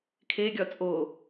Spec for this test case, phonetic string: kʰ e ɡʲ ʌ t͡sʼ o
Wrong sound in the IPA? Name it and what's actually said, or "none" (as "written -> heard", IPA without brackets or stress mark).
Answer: ʌ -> ɒ